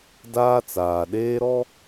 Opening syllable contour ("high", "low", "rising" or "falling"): high